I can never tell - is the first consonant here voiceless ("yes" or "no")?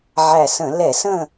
no